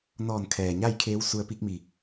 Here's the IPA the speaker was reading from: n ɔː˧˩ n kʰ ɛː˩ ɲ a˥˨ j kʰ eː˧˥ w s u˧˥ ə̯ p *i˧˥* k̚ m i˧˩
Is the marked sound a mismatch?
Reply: no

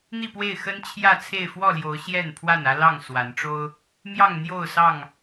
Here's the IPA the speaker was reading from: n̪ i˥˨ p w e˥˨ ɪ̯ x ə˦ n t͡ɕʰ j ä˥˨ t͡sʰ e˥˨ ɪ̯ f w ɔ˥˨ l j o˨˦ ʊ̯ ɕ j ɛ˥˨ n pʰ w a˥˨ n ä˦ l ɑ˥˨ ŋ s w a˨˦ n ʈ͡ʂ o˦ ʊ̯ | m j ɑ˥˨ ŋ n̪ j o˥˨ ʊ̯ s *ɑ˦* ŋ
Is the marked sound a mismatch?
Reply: yes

